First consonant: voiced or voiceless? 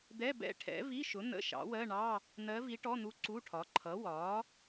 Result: voiced